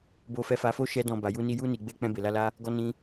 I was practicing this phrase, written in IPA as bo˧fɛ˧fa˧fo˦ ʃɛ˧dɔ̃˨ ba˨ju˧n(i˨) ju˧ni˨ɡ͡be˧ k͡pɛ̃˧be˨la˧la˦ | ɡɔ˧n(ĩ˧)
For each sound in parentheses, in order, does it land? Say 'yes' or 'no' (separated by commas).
no, yes